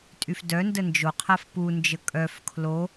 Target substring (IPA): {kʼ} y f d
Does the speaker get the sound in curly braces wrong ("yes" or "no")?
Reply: yes